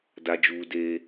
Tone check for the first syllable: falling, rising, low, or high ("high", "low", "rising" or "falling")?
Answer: low